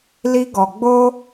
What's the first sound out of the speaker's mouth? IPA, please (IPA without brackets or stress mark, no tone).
l